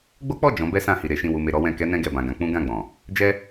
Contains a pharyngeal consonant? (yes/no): no